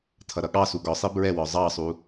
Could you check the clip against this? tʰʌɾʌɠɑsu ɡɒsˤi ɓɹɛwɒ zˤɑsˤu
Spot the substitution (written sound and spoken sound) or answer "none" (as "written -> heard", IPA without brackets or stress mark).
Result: ɓ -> b